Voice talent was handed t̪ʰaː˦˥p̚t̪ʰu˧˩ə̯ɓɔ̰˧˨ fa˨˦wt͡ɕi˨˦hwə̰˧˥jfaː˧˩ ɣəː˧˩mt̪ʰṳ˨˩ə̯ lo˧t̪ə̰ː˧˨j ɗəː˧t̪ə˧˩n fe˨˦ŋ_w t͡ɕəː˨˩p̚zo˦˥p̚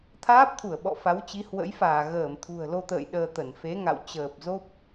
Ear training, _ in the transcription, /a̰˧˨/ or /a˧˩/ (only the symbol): a̰˧˨